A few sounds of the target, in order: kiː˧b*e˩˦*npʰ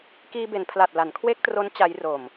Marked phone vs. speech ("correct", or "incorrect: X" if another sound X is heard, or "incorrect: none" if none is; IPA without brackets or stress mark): correct